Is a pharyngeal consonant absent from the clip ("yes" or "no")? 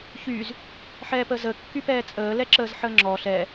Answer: no